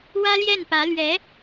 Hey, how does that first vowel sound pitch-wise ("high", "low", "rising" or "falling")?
high